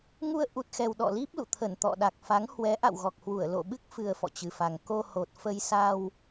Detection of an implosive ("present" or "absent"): present